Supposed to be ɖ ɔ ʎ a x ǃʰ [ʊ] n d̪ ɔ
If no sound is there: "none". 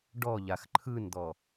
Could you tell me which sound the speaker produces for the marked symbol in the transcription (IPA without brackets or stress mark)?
ɯ